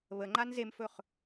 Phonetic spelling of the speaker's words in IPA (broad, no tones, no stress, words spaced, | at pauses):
βəŋ͡ǃan zemfɵχ